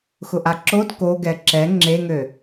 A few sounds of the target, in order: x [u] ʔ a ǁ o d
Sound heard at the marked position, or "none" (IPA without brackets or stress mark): ʊ